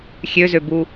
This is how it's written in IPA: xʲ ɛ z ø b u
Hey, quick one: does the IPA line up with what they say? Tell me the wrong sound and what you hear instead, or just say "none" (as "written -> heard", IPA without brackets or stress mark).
ɛ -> ø